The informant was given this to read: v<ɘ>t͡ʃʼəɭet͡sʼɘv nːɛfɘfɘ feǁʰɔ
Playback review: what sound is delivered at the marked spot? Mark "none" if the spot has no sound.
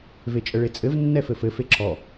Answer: e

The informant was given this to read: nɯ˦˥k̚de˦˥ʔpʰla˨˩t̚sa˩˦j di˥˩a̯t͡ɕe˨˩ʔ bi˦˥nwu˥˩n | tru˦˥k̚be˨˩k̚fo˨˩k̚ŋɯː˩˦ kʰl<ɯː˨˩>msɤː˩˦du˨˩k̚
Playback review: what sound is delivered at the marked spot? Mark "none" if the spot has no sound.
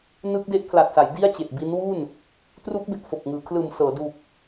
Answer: ɯː˨˩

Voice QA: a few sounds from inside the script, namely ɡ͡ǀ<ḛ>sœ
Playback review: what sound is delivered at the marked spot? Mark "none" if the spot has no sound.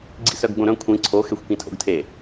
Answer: ḭ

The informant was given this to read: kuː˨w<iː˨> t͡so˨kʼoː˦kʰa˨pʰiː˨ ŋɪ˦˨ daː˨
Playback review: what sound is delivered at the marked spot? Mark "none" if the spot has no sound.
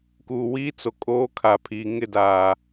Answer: iː˦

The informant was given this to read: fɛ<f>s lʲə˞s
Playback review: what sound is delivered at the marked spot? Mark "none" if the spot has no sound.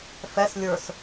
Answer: none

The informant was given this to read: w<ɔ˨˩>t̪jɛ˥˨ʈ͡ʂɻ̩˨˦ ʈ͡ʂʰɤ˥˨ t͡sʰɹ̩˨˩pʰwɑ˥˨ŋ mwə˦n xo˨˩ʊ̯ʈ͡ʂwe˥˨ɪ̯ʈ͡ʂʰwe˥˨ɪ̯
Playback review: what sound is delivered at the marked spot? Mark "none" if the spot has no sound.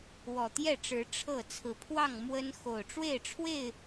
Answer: ɔ˨˩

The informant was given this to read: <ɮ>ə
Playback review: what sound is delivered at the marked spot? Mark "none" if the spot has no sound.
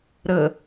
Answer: ɾ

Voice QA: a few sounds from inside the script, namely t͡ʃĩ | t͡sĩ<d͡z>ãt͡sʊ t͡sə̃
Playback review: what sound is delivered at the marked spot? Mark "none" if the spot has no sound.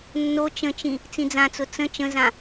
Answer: d͡z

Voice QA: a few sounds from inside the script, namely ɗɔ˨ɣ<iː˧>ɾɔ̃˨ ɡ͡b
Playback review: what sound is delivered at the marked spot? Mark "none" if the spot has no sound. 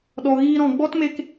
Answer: iː˧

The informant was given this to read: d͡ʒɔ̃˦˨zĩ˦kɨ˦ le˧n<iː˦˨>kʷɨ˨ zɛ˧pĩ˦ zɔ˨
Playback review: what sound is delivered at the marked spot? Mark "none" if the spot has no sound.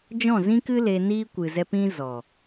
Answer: iː˦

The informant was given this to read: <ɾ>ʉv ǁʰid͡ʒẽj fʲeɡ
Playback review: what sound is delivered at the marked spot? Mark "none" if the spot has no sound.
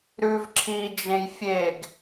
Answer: ɾ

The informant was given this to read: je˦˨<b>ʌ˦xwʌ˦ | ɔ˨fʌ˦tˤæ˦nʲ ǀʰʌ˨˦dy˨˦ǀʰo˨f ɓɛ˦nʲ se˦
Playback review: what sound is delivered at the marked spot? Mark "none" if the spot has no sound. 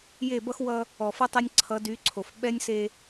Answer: b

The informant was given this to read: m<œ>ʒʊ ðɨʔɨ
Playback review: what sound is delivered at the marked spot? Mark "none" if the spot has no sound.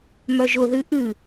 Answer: œ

